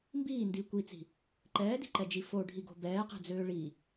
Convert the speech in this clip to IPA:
m b iː n d iː kʷ i t͡s i̤ | ǃ ɛː d i̤ ǃ ɛ d͡ʒ i f o ɖʱ i ɡ o̤ b ɛː q ɛ̤ d͡z øː ɭ i

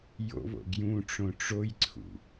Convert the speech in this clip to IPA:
j o̰ β o̰ ɡ j ũ ʈ͡ʂ õ ʈ͡ʂ o j ǀʰ ṵ

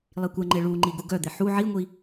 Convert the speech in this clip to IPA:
lˠ i kʷ ɛ ŋ͡ǃ e ɭ u ŋ͡ǃ i ɡ u ɡ œ d̪ e ħ u ʕ i ŋʷ i

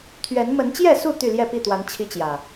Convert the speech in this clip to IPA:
t̪ʰ ɥ ɛ˨˦ n m ə˨˦ n t͡ɕ j ɛ˥˨ s u˥˨ t̪ y˥˨ l j ɛ˥˨ p i˥˨ t̪ w a˨˦ n t͡ɕʰ i˦ t͡ɕ j ä˨˩

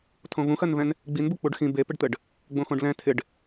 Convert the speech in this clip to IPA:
tʰ õ v ũ x ɜ n v ɛ̃ n | ɡ͡b i n b u k͡p u ɖ x ĩ b e p ɪ ɖ t̪ ɘ ɖ | ɡ͡b õ x õ ɖ l ɛ̃ tʰ ɪ ɖ

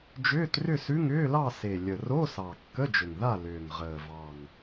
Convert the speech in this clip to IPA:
d͡ʒ ʏː˧˥˧ t r ʏ˥˨ s ʉ˧˥˧ ŋ ʏː˧˥˧ l ɑ˥˨ s e˨˩ lʲ ə˨˩ r o˧˥˧ s ɑ˨˩ kː ə˧˥˧ d͡ʒ ʏ˨˩ ŋ ð a˥˨ l ʏː˨˩ ŋ ʁ əː˨˩ v ɑ˨˩ ŋ

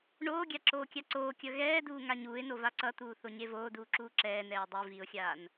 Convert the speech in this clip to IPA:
ɳ oː ɡʲ a ǁ oː kʲ a ǀ oː kʲ ʌ ɣ ɛː d uː ŋ a ɲ uː ɪ̯ n o v a ǀ ʌ t̪ uː θ o ɲ e v oː d uː ǁ uː ǁ ɛː n ɛː ə̯ dˤ i v i ʊ̯ xʲ aː n

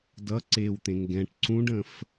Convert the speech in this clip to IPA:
d ʌ ǀ e w t̪ ẽ ŋ ɡ ɛ̃ ʈ ǀ ũ ɖ ə̃ f

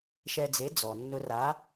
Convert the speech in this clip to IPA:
ʃ ɛ˧ d͡z e˨˥ d͡z ɔ˩ nː ʊ˧ r a˨˥

